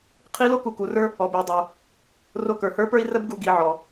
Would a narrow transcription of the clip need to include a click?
no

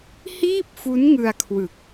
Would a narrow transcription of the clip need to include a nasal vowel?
no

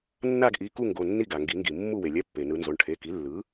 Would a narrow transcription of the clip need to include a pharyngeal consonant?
no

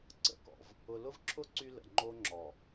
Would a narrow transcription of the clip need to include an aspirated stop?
yes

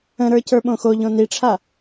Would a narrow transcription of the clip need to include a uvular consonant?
no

